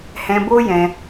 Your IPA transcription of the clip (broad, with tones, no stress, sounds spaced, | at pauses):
h ɛ̃˧ b o˦ j ɛ̃˧